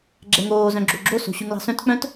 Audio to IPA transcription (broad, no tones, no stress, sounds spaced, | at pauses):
ɡ͡ǁ ɛ ŋ oː z œ̃ ɡ͡ǁ o ɡ͡ǁ o s o̤ ɕ ʉ ŋ l ɑ̤ s œ̃ t k͡p œ̃ t